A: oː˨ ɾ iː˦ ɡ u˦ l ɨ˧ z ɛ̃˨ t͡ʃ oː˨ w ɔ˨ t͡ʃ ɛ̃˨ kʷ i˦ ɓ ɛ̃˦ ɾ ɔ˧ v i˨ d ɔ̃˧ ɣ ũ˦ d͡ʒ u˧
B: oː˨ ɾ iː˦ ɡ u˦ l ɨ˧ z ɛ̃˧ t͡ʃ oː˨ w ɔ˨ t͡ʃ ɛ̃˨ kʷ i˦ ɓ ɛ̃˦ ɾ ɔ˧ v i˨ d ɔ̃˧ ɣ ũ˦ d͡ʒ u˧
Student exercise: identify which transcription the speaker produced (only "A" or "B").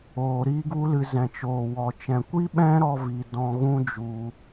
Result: A